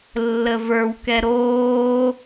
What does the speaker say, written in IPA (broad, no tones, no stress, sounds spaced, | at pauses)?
lː ə v ə˞ w k ɛ ɾ oː